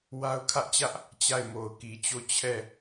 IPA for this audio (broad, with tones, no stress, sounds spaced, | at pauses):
w a˦ ʊ̯ kʰ ä˦ ʔ t͡ɕ ä˦ ʔ | t͡ɕ a˦˨ ɪ̯ m o˨ ʊ̯ k i˨ t͡ɕ o˦˨ t͡ɕʰ ɛ˦˨